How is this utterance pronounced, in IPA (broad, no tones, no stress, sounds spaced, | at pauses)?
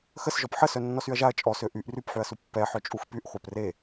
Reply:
x ə s ʒ ɔ p ħ ə s œ nː ɔ s y ɐ̯ ʒ a ɐ̯ t͡ʃʼ ɔ s ø ʔ y ʔ r y p ħ y ɐ̯ s u pː ɛ ħ œ t͡ʃʼ u x p y ʔ χʷ œ p r e